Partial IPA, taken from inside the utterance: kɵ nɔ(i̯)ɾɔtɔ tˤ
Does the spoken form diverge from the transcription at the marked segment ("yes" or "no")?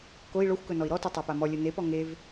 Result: no